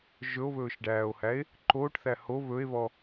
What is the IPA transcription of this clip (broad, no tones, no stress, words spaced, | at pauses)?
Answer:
ʒɵo̯βɵːʃɖæːo̯hæe̯ | ǃoːʈθæ ho βɵe̯βɔ